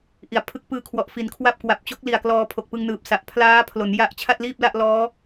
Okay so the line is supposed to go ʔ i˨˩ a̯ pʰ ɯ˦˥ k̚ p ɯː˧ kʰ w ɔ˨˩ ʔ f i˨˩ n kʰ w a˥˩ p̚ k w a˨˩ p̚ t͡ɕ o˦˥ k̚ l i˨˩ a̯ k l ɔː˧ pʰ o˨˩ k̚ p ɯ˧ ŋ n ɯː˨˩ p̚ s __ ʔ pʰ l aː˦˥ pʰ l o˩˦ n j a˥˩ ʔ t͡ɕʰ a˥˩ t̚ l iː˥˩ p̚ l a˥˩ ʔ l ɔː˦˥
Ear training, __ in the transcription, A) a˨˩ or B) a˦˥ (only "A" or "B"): A